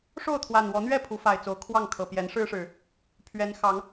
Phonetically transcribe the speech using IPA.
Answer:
ʂo˥˨ʊ̯t̪ʰwa˨˩nwɔ˨˦n̪ɥɛ˥˨ pʰu˨˦fa˨˩ɪ̯t͡so˨˦ʊ̯ kʰwɑ˥˨ŋ kʰɤ˨˩pjɛ˨˦nʂɻ̩˦ʂɻ̩˨˩ | pʰɥɛ˨˦n xɑ˨˦ŋ

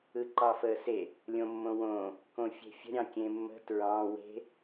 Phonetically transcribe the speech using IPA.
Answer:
ɯǃɑfəːse | lʲõmːõwõː | kõfʲe̤fʲə̤ ɾʲɑ̃kʲẽmːə̤ tɹɑ̃ we̤

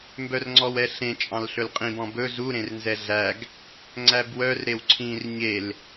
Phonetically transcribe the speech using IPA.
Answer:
mbœrŋ͡ǀɔwɛɬẽ t͡ʃʼɑ̃lɬɵlqʼĩb ɔ̃bɵ zu ɾẽrnzɛɮæɡ | ŋ͡ǀæbwœr ɾewǀʰĩr ɲel

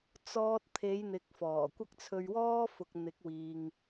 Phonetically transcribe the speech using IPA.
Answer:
t͡sɔː˥t̚ t̪ʰe˨˧jn̪ɪ˨k̚fɔː˨˩ kʷɐ˥k̚t͡sʰɵ˧ɥ wɔː˥fʊ˨k̚n̪ɪ˨˥k̚wiː˨ŋ

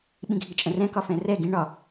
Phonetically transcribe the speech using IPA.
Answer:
ɓĩɡʱit͡ʃʼə̃rɛ̃ kɒfɛ̃rɛ ɡĩ ɳɒ

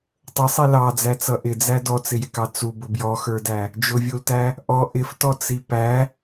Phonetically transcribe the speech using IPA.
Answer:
tˤəsˤi lɑd͡zæt͡sʌ ʔɪd͡zæ dɔt͡sɪjɪkɑ t͡subʊ bjɔxə˞dæ | d͡ʒʊvʲultæ | ʔɔ ʔɪftɔt͡si pæ

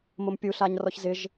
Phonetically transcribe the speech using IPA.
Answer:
mʊmpʲuɬaɲ rɔçzɪʒ

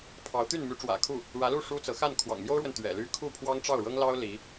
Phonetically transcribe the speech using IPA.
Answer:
pʰɑ˧˥ʊ̯ t̪y˥˩nmy˧˥ʈ͡ʂwä̰˨˩kʰu˥˩ | ɻä˧˥lu˥˩ ʂu˥t͡sɤ˧˥ xa˥˩n kʰwɑ̰˨˩ŋmjo˥ʊ̯ɻwə˨n t̪ɥɛ̰˨˩ ly˥ kʰu˥˩pʰwɑ˥ŋʈ͡ʂɑ˥˩ʊ̯ ɻɤ˥ŋlɑ˥ʊ̯ li˧˥

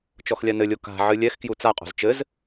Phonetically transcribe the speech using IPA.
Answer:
t͡ʃɔxlʲanɘlʲo ka̤ ʕɨlʲɛxkju t͡saqʼo̤z t͡ʃɘz

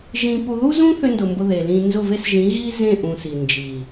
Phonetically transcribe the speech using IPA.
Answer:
ʒĩ˧pu˧ ðu˦zũ˦ θʏ˧ndʊ˨ mbʊ˧ðe˨lĩ˧ nzʊ˦˨ve˦sʒĩ˨˦ ɣi˦zẽ˦˨ ʔũ˨ si˨nd͡ʒi˨

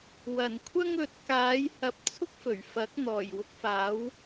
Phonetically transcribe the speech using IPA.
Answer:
wɐ˨˩nkʷʰɐ˥ŋɵ˨˥t̚ kaː˨˥j hɐ˨p̚ t͡sʰʊ˥k̚fɵ˨˩ɥfɐ˨˥k̚ n̪ɔː˨˩jwʊ˧k̚faː˨˥w

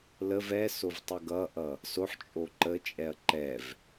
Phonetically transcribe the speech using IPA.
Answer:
ləv ɛsov tˤəɡʌʔʌ | soħt͡ʃʼo ǃət͡ʃʼɛɐ̯ ǃɛv

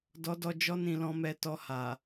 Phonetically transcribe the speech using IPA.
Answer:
dɔ˦dɔ˦ d͡ʒɔ˦nĩ˧lɔ̃˧mɛ˧ tɔ˧ ha˨

